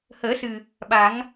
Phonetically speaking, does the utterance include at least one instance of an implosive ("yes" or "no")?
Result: yes